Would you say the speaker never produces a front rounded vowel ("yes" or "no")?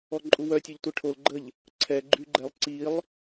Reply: no